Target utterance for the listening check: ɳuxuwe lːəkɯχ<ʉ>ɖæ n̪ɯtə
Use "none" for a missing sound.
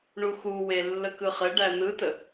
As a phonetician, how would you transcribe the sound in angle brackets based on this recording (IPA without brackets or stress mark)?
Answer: ɘ